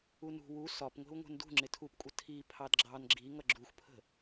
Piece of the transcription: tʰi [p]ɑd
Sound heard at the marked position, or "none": pʰ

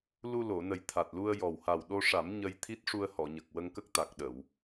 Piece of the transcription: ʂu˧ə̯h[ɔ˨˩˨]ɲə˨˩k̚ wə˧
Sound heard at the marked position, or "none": ɔ˨˩˨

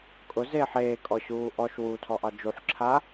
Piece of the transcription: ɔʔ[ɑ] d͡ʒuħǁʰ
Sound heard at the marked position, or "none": ɑ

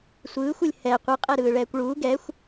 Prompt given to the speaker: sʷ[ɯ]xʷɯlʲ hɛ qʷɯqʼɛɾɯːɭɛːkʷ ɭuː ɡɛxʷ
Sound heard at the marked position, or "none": ɯː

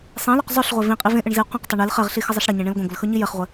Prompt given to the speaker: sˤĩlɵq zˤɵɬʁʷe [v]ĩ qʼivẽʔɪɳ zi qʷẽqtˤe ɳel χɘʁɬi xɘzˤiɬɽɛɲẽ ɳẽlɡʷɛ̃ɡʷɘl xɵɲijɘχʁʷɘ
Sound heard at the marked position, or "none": v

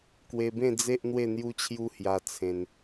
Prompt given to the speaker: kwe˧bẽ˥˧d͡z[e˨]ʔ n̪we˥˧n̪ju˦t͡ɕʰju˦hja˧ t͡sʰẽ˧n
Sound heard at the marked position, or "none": e˦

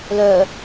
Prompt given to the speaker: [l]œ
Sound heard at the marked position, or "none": l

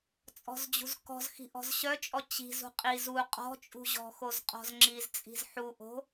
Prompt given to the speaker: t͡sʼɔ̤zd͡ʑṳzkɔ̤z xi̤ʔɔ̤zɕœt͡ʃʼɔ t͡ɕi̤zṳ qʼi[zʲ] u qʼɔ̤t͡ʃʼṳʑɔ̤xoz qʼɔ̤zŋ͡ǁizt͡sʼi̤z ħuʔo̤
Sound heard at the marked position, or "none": z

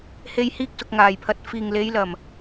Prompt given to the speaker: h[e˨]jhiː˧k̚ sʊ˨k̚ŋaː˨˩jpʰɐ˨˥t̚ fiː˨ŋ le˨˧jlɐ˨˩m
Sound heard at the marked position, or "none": e˨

